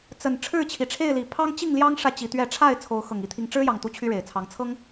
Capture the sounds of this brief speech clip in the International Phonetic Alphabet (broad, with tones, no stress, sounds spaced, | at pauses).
t͡s ə˨˩ n ʈ͡ʂʰ ɻ̩˥˨ t͡ɕʰ i˨˩ ʈ͡ʂʰ e˥˨ ɪ̯ l i˨˩ pʰ ɑ˦ ŋ t͡ɕ i˥˨ ŋ l j ɑ˦ ŋ ʂ ä˨ t͡ɕ i˨˦ t̪ ɥ ɛ˥˨ ʈ͡ʂʰ a˥˨ ɪ̯ t͡sʰ o˨˦ ʊ̯ x ɤ˨˩ ŋ i˨˦ t̪ʰ i˨˦ ŋ ʈ͡ʂ ɻ̩˦ j ɑ˨˩ ŋ t̪ u˦ t͡ɕʰ y˦ ɻ e˨˩ ɪ̯ t͡sʰ ɑ˨˦ ŋ t͡sʰ ɤ˦ ŋ